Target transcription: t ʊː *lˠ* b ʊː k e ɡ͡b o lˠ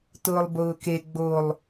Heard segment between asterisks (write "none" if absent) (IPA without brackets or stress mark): lˠ